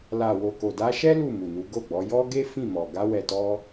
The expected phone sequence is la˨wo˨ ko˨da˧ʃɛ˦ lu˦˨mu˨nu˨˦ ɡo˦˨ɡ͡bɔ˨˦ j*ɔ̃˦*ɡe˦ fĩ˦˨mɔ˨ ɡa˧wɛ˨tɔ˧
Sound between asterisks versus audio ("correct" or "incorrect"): incorrect